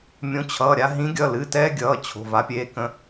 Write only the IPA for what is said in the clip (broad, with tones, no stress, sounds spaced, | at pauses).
mʲ õ˨˦ t͡ɕʰ ʌː˩˧˩ ɾʲ a˦ ɦ ĩ˨˦ ɡʲ ʌ˩˧˩ l ɨ˩˧˩ t ɛː˦ ɡʲ ʌː˩˧˩ t͡ɕʰ o̤˩˧˩ v a˨˦ pʲ eː˨˦ k ə̃˨˦